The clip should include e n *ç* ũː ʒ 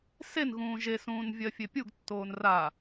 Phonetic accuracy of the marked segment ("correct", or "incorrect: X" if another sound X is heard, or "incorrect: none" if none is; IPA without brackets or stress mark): incorrect: ɣ